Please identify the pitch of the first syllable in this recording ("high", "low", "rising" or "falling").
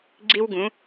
high